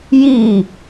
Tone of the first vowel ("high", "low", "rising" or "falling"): falling